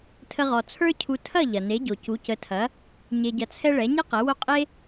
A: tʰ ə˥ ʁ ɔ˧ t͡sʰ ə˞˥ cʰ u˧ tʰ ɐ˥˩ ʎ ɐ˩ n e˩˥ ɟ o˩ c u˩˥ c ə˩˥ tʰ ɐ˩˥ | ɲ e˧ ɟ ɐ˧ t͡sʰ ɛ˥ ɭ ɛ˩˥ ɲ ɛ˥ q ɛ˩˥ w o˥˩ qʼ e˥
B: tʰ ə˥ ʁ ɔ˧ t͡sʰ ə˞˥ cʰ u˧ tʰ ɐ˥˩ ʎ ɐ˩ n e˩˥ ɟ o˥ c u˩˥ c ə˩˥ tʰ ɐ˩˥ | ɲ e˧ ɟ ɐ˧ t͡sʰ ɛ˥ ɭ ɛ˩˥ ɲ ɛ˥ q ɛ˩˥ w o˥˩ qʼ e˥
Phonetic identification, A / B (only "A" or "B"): A